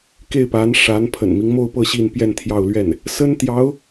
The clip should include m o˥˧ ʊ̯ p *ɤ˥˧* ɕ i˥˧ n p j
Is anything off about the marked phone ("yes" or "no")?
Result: no